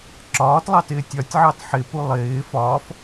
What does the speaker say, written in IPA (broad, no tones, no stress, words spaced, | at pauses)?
ǁɒːtlˠɑtɪː tʲɒtʲʕɑt ħɪpu lˠɪː fɒːf